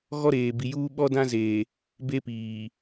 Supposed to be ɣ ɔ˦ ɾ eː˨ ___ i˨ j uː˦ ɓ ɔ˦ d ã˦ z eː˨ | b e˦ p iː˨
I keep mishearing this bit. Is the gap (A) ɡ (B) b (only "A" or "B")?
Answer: B